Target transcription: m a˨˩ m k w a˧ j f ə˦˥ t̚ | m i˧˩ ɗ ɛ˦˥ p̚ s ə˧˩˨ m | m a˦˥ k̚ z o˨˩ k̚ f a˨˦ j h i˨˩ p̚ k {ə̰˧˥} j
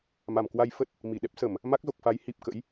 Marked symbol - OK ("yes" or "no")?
yes